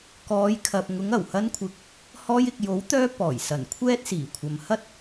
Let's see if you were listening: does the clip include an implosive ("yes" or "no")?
no